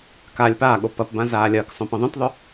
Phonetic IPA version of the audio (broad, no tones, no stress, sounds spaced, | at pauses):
k a lʲ p aː ɠ o p ɐ p b ã z aː lʲ ɐː k sˤ õ p ã ðˤ œ̃ t ðˤ œ